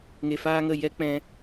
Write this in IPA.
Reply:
ŋ e˧ f aː˦ ŋ ə˦˨ j ɛ˦ k͡p ɛ̃˧

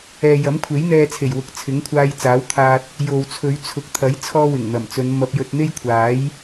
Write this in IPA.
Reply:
ɛː˨ j ɐ˨˥ m kʷʰ e˨˥ j n̪ ɛː˧ t͡sʰ e˨˩ j w ʊ˨ k̚ t͡sʰ ɪ˨˥ ŋ kʷʰ aː˧ j t͡s aː˨˥ w t̪ʰ aː˧ t̚ | j o˨ w t͡sʰ ɵ˨˧ ɥ t͡sʰ ʊ˨˥ k̚ t̪ʰ ɐ˨˥ j t͡sʰ ɔː˥ w ɪ˨˩ ŋ n̪ ɐ˨˩ m t͡s ɵ˨˧ n m ɐ˧ p̚ j ɵ˧ t̚ n̪ e˥ j kʷʰ aː˨˥ j

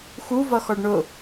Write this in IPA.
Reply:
x u v ʌ x ɔ ɖ ɳ ʊ

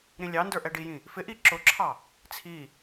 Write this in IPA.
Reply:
ɾ ĩ lʲ ɑ n d ə˞ ʔ ɛ ɖ i j ĩ | f ɪ ʔ i ǁ ʊ ǁʰ ɑ | t͡sʰ i

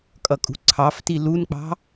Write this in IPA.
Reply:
kʼ ʌ kʼ ṳ ǀʰ ɑ f t i l u n k͡p ɑ̤

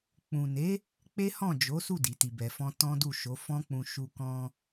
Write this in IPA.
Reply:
k͡p ũ˨ n e˨˦ | k͡p e˦ h ɔ̃˦˨ d͡ʒ o˨˦ s u˦˨ d i˨˦ t i˧ b ɛ˧ f ɔ̃˦ t ɔ̃˦ d u˦˨ ʃ o˨˦ f ɔ̃˦ k͡p ũ˧ ʃ u˧ k ɔ̃˧

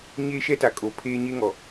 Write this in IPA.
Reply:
ɲ eː˦ ʃ ɛ˦ t a˨ kʼ o˨ pʰ eː˦ ɲ e˦ ŋ ɔ˨

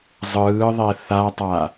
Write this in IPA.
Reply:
zˤ ɯː ðˤ ɛ θ a tˤ a

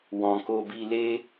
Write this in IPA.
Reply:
w ɔ̃˨ k o˧ b i˧ l e˦

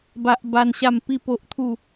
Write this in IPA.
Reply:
b a˦ ʔ b a˦ n ɕ a˥˧ m p i˥˧ p o˦ ʔ t̪ʰ u˥˧

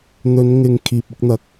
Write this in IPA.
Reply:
n̪ ɵ˨˧ n ŋ ɪ˨ ŋ kʰ iː˨ p̚ ɪ˥ k̚ n̪ ɐ˧ k̚

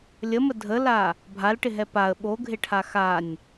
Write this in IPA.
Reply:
lʲ ə m ə dʱ ə l a | bʱ a l ʈ ɪ ɦ ɛ p a ə̯ ɓ o ɡʱ ɪ ʈʰ a x a nʲ

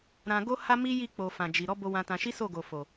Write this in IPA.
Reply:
ɾ ã˧ ɡ o˦ h a˦ m i˦ j i˦˨ k͡p o˨ f ã˨ d͡ʒ i˨ ɾ ɔ˨˦ b o˧ w ã˧ t ã˧ ʃ i˦ s o˦˨ ɡ o˨ f o˨

